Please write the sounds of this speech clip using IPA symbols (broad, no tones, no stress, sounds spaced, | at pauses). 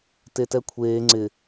t e t ɛ kʷʰ eː ŋ͡ǀ ɪ